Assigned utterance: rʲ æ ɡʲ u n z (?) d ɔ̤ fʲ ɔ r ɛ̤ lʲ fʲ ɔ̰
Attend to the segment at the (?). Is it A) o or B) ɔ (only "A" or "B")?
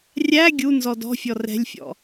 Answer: B